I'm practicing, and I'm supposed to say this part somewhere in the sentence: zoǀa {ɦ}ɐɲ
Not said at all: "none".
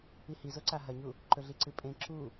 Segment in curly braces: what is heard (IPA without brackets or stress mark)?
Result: ɦ